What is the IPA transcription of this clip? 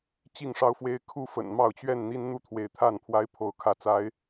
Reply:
t͡ɕ i˥˨ ŋ ʂ ɑ˦ ʊ̯ f w e˦ ɪ̯ kʰ u˥˨ f ə̰˨˩ n m ɑ˥˨ ʊ̯ t͡ɕ ɥ ɛ˥˨ n n̪ i˦ n n̪ u˥˨ t̪ʰ w e˨˦ ɪ̯ t̪ʰ a˥˨ n pʰ w a˦ ɪ̯ pʰ o˨˦ ʊ̯ kʰ ä˨˦ t͡s a˨˦ ɪ̯

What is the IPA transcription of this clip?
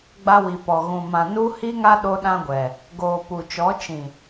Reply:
ɡ͡b a˦ w i˨ p ɔ˨ ɣ ũ˨ m ã˨ n u˦ h i˦ ŋ a˦ ɗ o˦ ɗ ã˦ ɡʷ ɛ˨ | ɡ oː˨ p u˨ t͡ʃ ɔ˨˦ t͡ʃ ĩ˨

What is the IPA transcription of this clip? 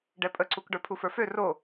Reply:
ɖ ɛ pʼ ə ǀ u k ɖ ə˞ pʰ u f ə˞ f ø r o

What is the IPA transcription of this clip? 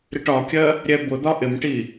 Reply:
ɾ ɪ ʈ ɒ kʲ ɜ | ɾʲ ɛ b ʊ d̪ ɒ ʔ ɪ m ʈ i

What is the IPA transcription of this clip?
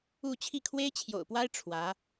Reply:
u˥˧ t͡ɕʰ i˥˩ kʰ w e˥ ɪ̯ t͡ɕʰ j o̰˨˩ ʊ̯ p w a˥ ɪ̯ ʈ͡ʂʰ w ä˧˥

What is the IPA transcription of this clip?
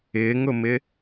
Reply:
ɪː ŋ ʊ m ɪ

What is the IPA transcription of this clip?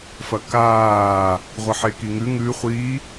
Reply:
f ɐ k aː | ʁʷ ɐ ħ e k i ŋ ʉ ŋ ʉ χʷ i

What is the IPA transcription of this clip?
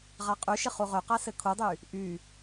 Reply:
ʁ a qʼ y ʃ ɪ χ u ʁ ø q a s ɘ kʰ u dˤ y | ʔ y

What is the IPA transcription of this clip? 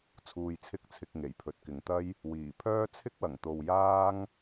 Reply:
t͡sʰ uː˧ j t͡sʰ ɪ˥ k̚ t͡sʰ ɪ˧ k̚ ŋ e˨˩ j pʰ ɵ˨ t̚ k ɪ˨ ŋ t̪ ɐ˥ j | w iː˨˩ pʰ œː˥ t͡sʰ ɪ˥ k̚ w ɐ˨˩ ŋ t̪ o˨ w j aː˥ ŋ

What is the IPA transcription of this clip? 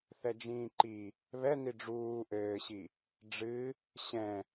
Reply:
θ ɛ d͡ʒ ĩː ǃ i | β ɛ n i ɖ͡ʐ uː ʔ ɘː ɕ i | ɖ͡ʐ ɨ | ɕ ɛ̃

